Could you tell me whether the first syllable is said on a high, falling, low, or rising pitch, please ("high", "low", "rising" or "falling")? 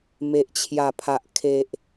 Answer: low